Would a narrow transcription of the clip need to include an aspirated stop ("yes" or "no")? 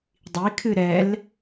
yes